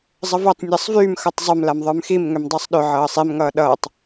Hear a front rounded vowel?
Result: yes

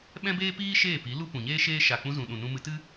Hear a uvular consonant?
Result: no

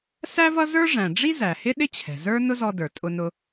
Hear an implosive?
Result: yes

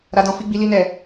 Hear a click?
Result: no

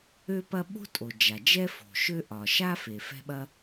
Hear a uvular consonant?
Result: no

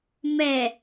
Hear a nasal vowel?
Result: no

